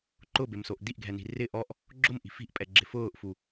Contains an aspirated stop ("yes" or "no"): no